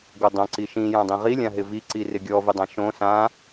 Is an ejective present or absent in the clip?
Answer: absent